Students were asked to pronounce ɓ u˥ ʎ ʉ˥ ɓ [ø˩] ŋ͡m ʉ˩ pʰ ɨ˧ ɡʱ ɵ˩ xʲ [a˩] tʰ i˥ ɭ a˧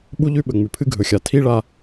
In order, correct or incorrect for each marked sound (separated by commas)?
incorrect, correct